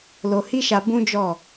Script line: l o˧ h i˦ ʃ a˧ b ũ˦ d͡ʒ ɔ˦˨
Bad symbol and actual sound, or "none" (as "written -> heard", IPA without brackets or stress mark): none